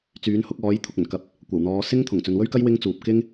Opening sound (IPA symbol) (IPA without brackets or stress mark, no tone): t͡s